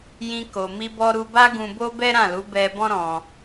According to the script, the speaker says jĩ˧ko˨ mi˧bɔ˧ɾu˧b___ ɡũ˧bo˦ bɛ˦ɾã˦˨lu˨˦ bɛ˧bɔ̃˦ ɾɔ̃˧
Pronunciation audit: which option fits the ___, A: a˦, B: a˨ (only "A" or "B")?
A